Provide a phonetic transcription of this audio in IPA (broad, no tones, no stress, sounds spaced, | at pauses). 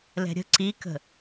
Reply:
l ɛ̤ ɾʲ ə̤ ǀ i k ə̤